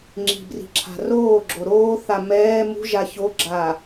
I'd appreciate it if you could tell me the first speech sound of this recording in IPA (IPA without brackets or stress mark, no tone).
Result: ŋ͡ǁ